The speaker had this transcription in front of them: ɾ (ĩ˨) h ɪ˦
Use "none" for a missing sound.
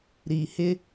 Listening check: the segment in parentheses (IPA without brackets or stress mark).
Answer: i˨